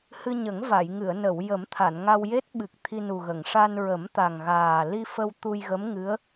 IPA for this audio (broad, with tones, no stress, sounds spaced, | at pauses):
h ɨ˧ ɲ ə˨˩˦ ŋ v a˨˩˨ j ŋ ɨ˨˩˨ ə̯ n ə˨˩˨ w j ə˨˩˦ m t̪ʰ a˨˩˨ n ŋ a˧ w j e˦˥ t̚ ɓ ɨ˨˩ k̚ t̪ʰ i˧ n u˨˩ ɣ ə˨˩˨ ŋ ʂ a˧ n ɹ ə˨˩˦ m t̪ a˨˩ ŋ ɣ aː˨˩ l i˧ f ə˧ w t̪ u˧ j ɣ ə˧˥ m ŋ ɨ˧˥ ə̯